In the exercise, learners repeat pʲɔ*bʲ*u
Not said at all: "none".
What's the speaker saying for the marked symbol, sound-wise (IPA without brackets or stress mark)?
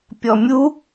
mʲ